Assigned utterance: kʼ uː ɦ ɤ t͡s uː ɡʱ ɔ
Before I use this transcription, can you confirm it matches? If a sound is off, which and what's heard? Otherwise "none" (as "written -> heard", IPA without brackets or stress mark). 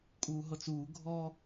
none